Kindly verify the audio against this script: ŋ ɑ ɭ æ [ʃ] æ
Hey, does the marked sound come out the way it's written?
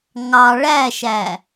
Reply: yes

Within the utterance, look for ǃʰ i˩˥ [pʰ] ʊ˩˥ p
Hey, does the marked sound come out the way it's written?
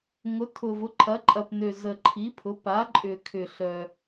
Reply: yes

